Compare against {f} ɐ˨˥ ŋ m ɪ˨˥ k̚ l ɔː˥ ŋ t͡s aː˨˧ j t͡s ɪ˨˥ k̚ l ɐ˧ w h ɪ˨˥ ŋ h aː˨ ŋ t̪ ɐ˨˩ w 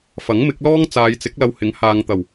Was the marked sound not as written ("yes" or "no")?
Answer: no